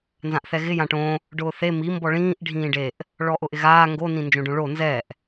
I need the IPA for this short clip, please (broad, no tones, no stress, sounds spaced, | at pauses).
n z ã ʔ θ ɛ ɣ ɪ j ã ʈ õ | ɖ ʊː θ e m i m b ɔ ɭ ĩː ʔ ɖʱ ĩː ɖ e ʔ | ɭ ɔ ʔ ʊ ʔ ɪ ɣ aː ŋ ɡ o n ĩ n d͡ʒ õ ɖ õ ɭ o n z ɛ ʔ